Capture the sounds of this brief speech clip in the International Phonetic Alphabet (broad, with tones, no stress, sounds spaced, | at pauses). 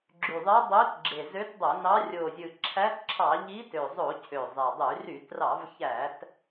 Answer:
ɡ͡ǁ y˨˩ ðˤ e˧˥ dˤ ø˧˥ t ɡ͡ǁ e˨˩ z ø˧˥ t dˤ o˧˩˧ n ɑ˧˥ rʲ o˨˩ zʲ ɯ˨˩ ǁʰ æ˧˥ t ǁʰ ɑ˧˩˧ ʎ i˧˥ t ø˨˩ zˤ o˧˩˧ cʰ ø˨˩ zˤ e˨˩ dˤ y˧˩˧ r y˧˩˧ t r ɑ˧˩˧ v ç æ˧˩˧ t